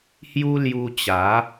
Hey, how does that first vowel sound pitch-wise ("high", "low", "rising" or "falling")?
high